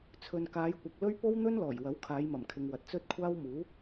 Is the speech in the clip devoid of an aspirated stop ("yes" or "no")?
no